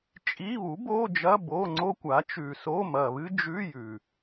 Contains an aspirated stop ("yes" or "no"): no